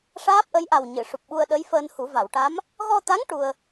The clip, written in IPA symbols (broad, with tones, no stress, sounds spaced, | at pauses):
ʂ aː˦˥ p̚ ʔ ə˧˥ j ʔ a˨˩ w ɲ ɨ˨˩˨ ʂ u˨˩ p̚ ɓ u˧ ə̯ ɗ ə˧˥ j f əː˧ n h u˨˩˦ v a˨˩˨ w ʈ a˧˥ m | ɣ ɔ˧ t̪ a˧˥ ŋ ʈ u˧ ə̯